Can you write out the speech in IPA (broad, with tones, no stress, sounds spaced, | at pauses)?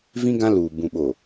v ĩ˦ ɡ ã˦ l uː˨ b ũ˨ ɓ o˨